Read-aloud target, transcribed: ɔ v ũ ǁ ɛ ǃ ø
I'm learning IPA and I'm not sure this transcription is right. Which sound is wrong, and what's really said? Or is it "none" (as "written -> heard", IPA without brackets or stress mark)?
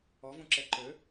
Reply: none